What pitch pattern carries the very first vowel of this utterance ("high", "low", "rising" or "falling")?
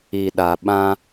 low